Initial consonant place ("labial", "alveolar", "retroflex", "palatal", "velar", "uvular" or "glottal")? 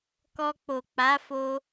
velar